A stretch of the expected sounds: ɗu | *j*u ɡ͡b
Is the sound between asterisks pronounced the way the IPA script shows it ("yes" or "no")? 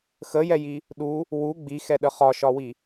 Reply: no